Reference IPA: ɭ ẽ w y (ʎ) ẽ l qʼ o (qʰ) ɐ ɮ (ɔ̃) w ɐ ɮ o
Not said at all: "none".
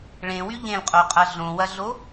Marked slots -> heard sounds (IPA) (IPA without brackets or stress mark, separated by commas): ʎ, qʼ, õ